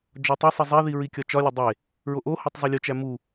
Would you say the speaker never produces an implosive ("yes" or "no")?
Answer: yes